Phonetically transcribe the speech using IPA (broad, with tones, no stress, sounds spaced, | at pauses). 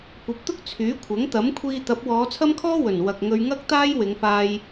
kʷ ɐ˨˥ p̚ t̪ ʊ˥ k̚ t͡sʰ yː˨˥ kʷʰ ɐ˨˥ ŋ t̪ ɐ˨˥ m kʷʰ iː˧ t̪ ɐ˨˥ p̚ w ɔː˨˧ t͡sʰ ɐ˥ m kʰ ɔː˥ w ɵ˨˩ n w ɐ˨ k̚ ŋ ɵ˧ ɥ ŋ ɐ˥ k̚ t̪ aː˥ j w ɪ˨˧ ŋ f aː˧ j